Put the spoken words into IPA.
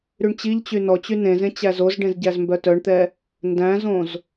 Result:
ɾ y ɳ t͡ɕ i ʎ t͡ɕ y n ɔ t͡ɕ y n ẽ z ẽ t͡ɕ æ z o z ɖ ẽ z ɟ æ z m b œ t œ ɳ t̪ ɛ | n d æ̃ z õ z

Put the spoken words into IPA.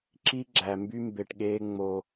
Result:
ǁ i˦ ɡ͡ǁ æ˨ m b y˦ m b e˨ ʈ ɠ eː˧ ŋ͡m o˨

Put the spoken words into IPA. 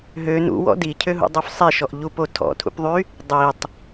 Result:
ɦ ø n ṵ w ɔ̰ d i cʰ ø ɦ ṵ dˤ o f sˤ i ʃ ɔ ʔ ʎ u p o tʰ ɔ̰ tʰ ṵ p ðˤ y | dˤ i tˤ

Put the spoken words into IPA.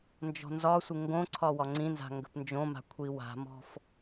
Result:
n d͡ʒ ɔ̤ n z ɒ sʷ ɪ ŋ ɡ õ ǀʰ ɒ w ɒ ŋ͡ǀ ĩ n z a̤ ŋ ɡ ə̤ p n d͡ʒ õ m a̤ kʷʰ i w a̤ m ɔ̤ f

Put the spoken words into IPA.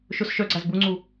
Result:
ʃ ʊ s ʃ œ ɡ͡ǀ a z b u ŋ͡ǀ u

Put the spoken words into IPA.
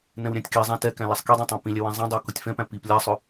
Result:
n ɛ̃ w ɾʲ æ̃ tʲ k i zˤ ã t ɛ k æ̃ l æ sˤ k i dˤ ɛ̃ tˤ ã p ĩ lʲ ɛ w ɛ̃ zˤ æ̃ dˤ a k ʊ tʲ f ɛ̃ p æ̃ p i p lʲ a sˤ ʊ

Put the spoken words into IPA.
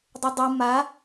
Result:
dˤ ɪ dˤ u m a

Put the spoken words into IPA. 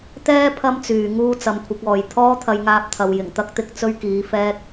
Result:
t̪ ɛː˥ pʰ ɐ˥ m t͡s yː˨ ŋ uː˥ t͡s ɐ˨˧ m kʷʰ ɪ˨˥ k̚ ɔː˨ j t̪ʰ ɔː˥ t̪ʰ ɐ˧ j ŋ aː˧ p̚ t̪ʰ ɐ˨ w j ɪ˨˩ ŋ t̪ ɐ˥ k̚ t̪ ɪ˧ k̚ t͡s ɵ˥ ɥ k iː˨˧ f ɛː˥ k̚

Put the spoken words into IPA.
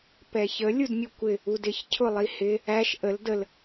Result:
p ɛ ç ə lʲ u d mʲ u kʷ ɪ | u d ɪ ç cʰ ʊ lˠ i h ɪ | æ ʃ ʔ ə l d ə l

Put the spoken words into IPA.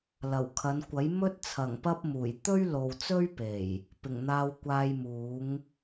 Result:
l ɐ˨˩ w kʰ ɐ˨˧ n kʷ ɐ˨˥ j m ɵ˥ t̚ t͡sʰ ɐ˨˩ ŋ p ɐ˥ p̚ m uː˨˩ j t̪ ɵ˥ ɥ l o˨ w t͡s ɵ˥ ɥ p e˨˩ j | p ɪ˨˩ ŋ n̪ aː˧ w kʷ aː˧ j m uː˨˥ ŋ

